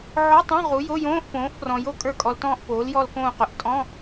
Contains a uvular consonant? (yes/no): yes